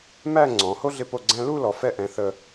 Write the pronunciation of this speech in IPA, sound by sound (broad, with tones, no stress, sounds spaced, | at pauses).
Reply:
m æ˥˧ ŋ͡ǀ ɔ̃˩˧ h o˥ ɮ ɪ˧ p o˧˩ ɡ͡ǀ æ̃˧ l u˥˧ l ɔ˩˧ f ɛ˧ ʔ ɛ̃˩˧ θ ə˧